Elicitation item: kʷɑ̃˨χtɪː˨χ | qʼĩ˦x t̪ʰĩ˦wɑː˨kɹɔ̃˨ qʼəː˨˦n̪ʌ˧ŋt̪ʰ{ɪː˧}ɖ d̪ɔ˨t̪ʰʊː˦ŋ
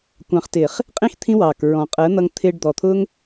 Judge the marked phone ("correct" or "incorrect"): correct